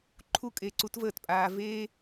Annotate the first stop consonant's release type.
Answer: click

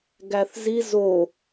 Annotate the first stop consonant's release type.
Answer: plain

